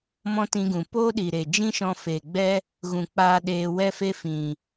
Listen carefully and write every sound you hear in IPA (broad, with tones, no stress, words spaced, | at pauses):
mɔ̃˦tĩ˧ɡũ˨ poː˦ɗi˨ɾe˨d͡ʒĩ˦ ʃɔ̃˧fe˨ɡ͡bɛ˦ | ɣũ˨k͡paː˧ ɗeː˧ wɛ˦fe˦fĩ˨